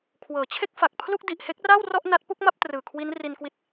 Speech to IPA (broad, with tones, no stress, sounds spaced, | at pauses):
kʰ w ɤː˩˦ t͡ɕʰ e˥˩ k̚ f a˨˩ k̚ pʰ l u˥˩ k̚ d i˨˩ ʔ h e˥˩ k̚ r a˥˩ w r ɔ˥˩ ʔ n a˦˥ t̚ p u˥˩ k̚ m a˥˩ p̚ t r ɯː˨˩ kʰ w i˦˥ n r i˧ n k w i˦˥ t̚